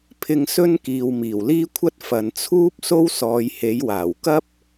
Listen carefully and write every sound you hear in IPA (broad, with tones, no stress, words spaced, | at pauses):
pʰɪ˨ŋsɵ˧n kiː˨wmiː˨˩wliː˥kʷʰɐ˥t̚ fɐ˨nt͡sʰuː˥p̚ so˥wsɔː˨˧jhe˨˥jwaː˨˩w kɐ˥p̚